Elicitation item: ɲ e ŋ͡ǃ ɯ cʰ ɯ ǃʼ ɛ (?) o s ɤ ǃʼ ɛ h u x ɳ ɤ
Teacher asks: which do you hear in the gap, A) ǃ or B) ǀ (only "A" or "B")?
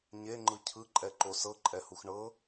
A